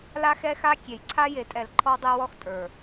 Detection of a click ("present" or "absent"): present